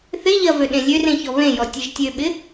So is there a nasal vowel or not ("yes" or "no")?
yes